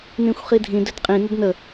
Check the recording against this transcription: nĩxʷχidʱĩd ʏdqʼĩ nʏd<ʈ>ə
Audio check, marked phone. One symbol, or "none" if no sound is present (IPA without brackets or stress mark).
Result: n